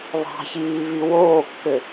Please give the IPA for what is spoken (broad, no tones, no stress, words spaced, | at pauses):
βɑ̤çiːβi woːkːø